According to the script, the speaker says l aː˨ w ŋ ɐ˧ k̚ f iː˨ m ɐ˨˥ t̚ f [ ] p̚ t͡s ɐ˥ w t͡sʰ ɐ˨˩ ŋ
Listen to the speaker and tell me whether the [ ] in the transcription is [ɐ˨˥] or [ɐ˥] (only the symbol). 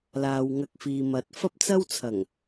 ɐ˥